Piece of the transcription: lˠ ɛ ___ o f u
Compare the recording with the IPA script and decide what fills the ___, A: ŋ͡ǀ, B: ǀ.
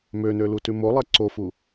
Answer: B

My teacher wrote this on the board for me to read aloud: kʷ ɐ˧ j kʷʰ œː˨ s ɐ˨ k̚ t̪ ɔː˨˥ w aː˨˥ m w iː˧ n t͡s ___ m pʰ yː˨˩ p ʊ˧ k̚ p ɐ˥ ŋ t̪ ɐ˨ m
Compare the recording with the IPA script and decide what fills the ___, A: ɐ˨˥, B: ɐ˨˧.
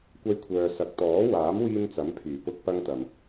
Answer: A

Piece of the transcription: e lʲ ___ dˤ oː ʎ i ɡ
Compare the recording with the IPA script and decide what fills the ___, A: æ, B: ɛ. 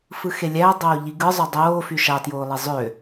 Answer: A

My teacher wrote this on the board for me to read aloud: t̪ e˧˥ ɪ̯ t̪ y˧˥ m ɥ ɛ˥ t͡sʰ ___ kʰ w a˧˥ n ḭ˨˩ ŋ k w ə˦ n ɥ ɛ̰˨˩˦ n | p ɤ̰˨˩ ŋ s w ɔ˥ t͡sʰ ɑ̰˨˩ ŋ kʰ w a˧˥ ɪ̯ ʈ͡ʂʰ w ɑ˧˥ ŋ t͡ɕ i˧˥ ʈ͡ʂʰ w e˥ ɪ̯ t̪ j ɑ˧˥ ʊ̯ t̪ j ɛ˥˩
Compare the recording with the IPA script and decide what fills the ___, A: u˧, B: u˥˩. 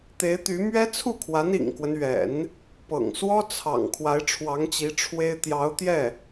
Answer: B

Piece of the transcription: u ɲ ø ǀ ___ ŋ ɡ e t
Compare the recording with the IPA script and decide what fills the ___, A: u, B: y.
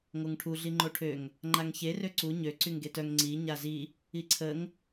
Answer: B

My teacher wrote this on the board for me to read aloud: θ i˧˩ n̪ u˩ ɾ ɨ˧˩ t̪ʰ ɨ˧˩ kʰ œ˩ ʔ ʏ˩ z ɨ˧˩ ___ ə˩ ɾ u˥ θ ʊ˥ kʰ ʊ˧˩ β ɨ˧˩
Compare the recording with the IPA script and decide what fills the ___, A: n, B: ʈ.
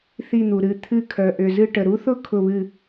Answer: B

